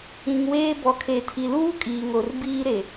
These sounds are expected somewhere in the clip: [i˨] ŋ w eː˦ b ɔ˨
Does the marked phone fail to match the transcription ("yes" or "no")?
yes